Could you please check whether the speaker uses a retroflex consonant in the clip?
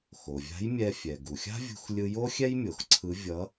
no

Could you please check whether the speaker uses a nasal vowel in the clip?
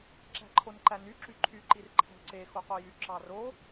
no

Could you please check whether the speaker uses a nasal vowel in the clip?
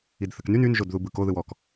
no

